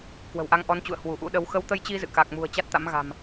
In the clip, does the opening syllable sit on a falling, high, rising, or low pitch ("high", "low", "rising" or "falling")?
low